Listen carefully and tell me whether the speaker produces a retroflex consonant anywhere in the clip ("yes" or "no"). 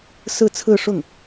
yes